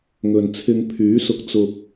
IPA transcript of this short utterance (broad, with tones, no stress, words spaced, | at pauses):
ŋɵ˨n t͡sʰɪ˧ŋpʰyː˨˥sʊ˧k̚ t͡sʊ˨k̚